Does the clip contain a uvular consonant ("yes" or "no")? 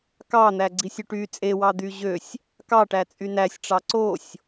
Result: no